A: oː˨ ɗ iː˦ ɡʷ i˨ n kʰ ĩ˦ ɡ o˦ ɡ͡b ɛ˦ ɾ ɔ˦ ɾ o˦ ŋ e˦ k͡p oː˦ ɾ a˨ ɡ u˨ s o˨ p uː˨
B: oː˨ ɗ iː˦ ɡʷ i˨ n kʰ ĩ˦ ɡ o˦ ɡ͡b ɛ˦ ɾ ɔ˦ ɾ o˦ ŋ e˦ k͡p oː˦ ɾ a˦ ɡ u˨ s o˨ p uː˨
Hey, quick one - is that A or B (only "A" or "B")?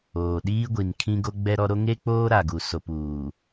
A